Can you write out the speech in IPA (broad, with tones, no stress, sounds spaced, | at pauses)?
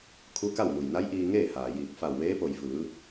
kʰ u˧˥ k a˥˨ w m u˩ j n a˧˥ j ʔ iː˧ ŋ eː˥˨ h aː˩ j iː˧˩ k̚ f a˧˩ w ʋ eː˧˥ p o˧˩ j f ɯː˩˧